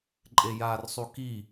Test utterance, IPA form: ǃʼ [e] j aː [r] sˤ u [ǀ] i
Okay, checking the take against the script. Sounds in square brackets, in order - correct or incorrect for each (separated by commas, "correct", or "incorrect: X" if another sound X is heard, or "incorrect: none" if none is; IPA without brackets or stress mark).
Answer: correct, correct, incorrect: k